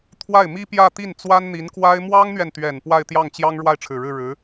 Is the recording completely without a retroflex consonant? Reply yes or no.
no